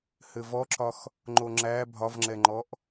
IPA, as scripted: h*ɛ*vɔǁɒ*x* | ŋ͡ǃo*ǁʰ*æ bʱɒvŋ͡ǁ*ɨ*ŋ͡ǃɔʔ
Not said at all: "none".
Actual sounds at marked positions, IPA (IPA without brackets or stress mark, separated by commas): ɘ, x, ŋ͡ǁ, ɛ